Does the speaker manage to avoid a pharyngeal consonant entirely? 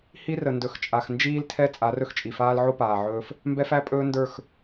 no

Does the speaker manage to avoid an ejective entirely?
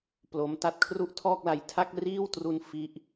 yes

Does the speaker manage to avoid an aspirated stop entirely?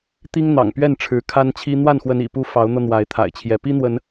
no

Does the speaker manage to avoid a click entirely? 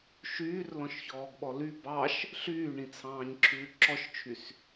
no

